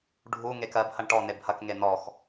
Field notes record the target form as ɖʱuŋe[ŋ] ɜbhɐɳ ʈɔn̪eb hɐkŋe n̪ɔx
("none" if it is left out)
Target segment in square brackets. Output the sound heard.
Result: k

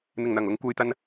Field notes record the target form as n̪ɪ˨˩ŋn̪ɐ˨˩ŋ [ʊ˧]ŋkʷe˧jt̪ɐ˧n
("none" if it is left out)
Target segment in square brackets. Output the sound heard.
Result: ʊ˧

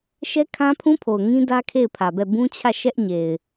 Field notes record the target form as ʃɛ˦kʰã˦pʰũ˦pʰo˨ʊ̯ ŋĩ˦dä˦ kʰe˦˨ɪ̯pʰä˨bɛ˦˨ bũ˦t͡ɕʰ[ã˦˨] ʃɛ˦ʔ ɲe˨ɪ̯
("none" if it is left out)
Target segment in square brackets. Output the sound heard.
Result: ä˦˨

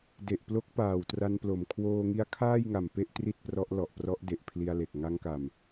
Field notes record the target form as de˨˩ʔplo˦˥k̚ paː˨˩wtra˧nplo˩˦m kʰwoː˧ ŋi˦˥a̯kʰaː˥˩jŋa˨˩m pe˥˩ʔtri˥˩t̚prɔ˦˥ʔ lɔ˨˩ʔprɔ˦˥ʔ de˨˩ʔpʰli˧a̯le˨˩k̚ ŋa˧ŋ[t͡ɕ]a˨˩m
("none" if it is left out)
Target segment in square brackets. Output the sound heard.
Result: k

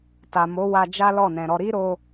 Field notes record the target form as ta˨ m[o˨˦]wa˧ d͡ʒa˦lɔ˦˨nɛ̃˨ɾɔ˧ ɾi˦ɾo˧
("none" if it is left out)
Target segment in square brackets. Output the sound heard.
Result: o˨˦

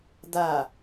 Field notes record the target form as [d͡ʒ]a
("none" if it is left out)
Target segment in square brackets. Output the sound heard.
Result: d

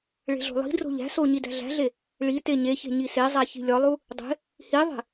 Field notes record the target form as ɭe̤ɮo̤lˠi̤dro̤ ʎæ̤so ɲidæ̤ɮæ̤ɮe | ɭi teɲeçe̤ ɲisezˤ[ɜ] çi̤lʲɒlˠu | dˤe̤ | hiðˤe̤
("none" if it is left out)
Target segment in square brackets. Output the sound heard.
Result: æ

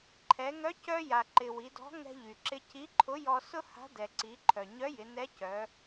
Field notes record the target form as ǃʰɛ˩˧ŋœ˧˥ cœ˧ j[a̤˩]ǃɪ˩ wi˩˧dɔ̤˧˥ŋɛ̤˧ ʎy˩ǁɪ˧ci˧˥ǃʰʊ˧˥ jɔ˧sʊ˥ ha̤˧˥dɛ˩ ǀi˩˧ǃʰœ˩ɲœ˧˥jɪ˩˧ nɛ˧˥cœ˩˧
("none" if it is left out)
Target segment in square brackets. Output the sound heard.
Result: a˩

